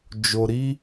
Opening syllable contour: low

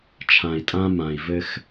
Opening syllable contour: low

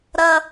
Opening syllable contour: high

